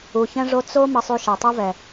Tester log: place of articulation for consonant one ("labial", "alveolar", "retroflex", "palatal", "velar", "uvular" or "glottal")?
palatal